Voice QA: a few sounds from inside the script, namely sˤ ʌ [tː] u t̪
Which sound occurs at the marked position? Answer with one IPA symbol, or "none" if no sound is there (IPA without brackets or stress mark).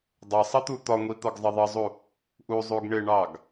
t̪